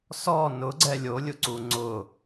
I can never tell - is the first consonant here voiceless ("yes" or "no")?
yes